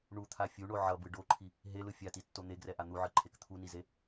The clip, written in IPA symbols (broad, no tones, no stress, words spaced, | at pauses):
ɳut̪ʰa fʲuɳo ʕʌbɯ ɖoǃʰi | ɦelɯ fʲatitːo n̪eɡrɛʔa n̪uʕɯǃʰek t̪ʰunize